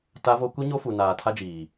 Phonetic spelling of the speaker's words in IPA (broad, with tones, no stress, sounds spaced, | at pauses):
t a˦ v o˦ kʷ i˦ ɲ o˦ f u˨ n aː˨ tʰ a˦ d͡ʒ iː˨